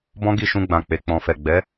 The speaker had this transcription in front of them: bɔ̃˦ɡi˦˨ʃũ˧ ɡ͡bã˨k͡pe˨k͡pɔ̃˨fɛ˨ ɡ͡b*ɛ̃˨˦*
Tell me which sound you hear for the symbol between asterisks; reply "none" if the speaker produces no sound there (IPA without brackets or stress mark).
ɛ˨˦